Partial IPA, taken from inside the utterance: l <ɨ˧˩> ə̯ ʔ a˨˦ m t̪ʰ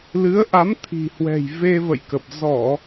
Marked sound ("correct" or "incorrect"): incorrect